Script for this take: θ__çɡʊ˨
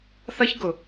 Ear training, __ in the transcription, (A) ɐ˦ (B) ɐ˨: A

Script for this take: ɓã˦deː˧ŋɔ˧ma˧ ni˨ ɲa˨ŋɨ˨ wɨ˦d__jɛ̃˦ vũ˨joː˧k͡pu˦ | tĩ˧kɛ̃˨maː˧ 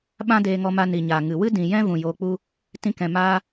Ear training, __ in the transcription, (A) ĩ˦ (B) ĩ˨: B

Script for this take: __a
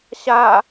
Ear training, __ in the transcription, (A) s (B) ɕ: B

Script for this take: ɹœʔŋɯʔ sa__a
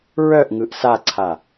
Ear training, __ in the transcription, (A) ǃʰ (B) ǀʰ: B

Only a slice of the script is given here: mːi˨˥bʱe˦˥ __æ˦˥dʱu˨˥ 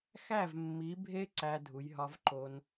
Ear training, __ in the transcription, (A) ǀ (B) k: A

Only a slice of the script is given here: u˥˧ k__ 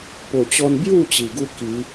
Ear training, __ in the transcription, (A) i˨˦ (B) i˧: A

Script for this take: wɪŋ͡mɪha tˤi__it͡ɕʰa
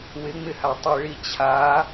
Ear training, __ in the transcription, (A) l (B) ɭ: B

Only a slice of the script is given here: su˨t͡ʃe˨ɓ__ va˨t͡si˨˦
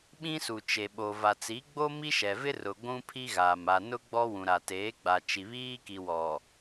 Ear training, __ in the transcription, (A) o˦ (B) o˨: B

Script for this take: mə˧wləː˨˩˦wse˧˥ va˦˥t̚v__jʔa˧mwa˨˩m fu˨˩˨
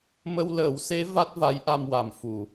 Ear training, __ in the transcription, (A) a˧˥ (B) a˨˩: A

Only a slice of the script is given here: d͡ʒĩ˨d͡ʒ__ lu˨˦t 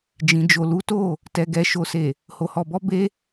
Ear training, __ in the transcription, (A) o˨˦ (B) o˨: B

